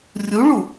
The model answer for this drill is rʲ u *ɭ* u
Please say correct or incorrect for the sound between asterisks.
correct